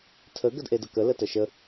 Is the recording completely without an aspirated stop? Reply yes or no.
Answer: no